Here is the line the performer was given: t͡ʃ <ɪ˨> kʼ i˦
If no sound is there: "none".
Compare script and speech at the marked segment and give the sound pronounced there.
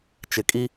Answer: ɪ˨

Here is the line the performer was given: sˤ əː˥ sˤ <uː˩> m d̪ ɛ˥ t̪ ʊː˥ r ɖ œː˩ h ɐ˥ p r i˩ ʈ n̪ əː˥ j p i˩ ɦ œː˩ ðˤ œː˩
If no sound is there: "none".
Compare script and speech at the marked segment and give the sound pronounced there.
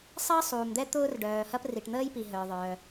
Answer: uː˩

